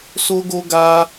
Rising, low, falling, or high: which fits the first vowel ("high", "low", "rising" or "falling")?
high